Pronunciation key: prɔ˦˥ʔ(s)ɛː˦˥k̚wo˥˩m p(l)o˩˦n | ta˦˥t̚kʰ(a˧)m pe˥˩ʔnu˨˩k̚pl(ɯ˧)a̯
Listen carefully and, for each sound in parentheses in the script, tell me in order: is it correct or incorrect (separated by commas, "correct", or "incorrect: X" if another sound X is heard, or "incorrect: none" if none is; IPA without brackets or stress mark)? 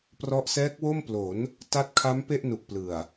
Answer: correct, correct, incorrect: a˦˥, incorrect: ɯ˨˩